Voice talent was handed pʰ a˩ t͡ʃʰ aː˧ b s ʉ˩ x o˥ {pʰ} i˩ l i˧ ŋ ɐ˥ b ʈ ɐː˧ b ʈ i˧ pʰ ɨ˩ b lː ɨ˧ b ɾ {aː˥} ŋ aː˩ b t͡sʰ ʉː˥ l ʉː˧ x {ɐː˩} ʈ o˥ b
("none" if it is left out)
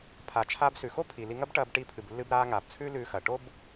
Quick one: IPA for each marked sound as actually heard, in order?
pʰ, aː˧, ɐː˩

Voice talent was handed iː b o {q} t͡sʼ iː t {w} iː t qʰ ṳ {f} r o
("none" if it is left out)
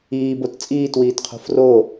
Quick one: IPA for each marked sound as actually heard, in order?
t, w, f

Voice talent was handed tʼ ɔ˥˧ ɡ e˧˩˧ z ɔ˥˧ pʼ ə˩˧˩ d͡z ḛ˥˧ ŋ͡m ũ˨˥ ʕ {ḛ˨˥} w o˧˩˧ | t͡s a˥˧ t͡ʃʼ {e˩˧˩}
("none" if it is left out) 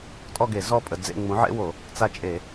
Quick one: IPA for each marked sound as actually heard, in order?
ḛ˥, e˧˩˧

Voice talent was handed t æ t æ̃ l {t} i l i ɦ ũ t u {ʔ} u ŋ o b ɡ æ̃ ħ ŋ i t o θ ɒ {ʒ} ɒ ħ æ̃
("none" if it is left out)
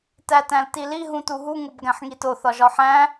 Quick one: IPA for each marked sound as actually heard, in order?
t, ɦ, ʒ

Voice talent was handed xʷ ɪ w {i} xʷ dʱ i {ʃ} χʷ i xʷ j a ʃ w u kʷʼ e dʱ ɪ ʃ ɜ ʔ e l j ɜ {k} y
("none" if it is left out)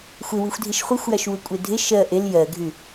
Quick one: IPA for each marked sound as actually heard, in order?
i, ʃ, ɡʱ

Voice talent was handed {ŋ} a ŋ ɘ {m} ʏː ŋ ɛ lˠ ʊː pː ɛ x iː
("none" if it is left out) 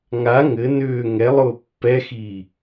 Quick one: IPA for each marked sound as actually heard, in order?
ŋ, n

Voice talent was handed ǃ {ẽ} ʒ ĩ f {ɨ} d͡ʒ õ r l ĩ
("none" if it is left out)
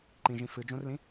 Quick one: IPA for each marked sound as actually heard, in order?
ĩ, ɨ

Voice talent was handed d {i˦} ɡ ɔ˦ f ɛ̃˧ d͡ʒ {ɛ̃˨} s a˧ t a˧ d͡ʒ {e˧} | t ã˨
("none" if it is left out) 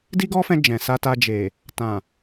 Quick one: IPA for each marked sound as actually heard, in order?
i˦, ɛ̃˨, e˨

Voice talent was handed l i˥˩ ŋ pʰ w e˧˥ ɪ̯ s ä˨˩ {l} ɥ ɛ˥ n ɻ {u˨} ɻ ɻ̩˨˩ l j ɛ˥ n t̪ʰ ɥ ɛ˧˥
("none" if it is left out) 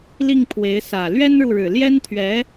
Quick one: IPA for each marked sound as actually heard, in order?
l, u˨

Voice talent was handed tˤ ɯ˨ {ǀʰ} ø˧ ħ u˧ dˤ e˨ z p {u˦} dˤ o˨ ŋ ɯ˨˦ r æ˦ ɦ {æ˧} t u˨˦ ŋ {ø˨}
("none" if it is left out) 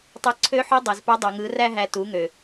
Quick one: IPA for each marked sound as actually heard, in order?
ǀʰ, u˧, æ˧, ø˨

